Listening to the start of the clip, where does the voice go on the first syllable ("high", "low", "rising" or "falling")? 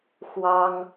high